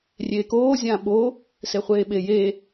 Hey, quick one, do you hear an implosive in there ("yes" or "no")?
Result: yes